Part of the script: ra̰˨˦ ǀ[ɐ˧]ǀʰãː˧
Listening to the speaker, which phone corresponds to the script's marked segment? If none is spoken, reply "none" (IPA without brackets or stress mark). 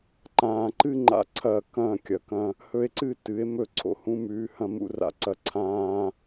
ɐ˧